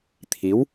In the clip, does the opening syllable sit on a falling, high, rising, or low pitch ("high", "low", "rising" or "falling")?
rising